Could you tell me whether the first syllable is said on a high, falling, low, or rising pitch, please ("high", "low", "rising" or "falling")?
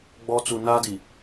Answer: high